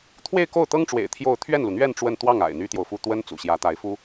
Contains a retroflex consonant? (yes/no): yes